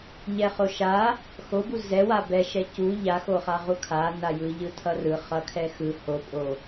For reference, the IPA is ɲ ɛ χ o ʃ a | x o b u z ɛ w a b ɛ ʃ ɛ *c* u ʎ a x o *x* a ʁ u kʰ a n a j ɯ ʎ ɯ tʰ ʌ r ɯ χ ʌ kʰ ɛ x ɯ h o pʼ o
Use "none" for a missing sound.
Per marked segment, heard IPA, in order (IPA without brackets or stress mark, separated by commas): c, χ